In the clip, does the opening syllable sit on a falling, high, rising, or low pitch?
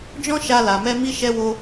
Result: high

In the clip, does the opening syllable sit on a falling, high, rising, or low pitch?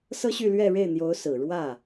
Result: high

